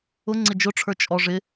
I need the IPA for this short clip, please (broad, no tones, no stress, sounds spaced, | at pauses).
ʊ ŋ͡ǀ ɪ d͡ʒ ʊ ʈ͡ʂʰ ə˞ t͡ʃʼ ɔ ʐ ɪ